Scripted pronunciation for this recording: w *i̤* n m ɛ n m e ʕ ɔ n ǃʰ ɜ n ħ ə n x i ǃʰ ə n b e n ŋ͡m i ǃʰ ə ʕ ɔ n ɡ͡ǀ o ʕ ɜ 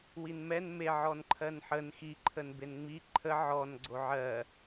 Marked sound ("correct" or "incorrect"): incorrect